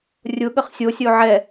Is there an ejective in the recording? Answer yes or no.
no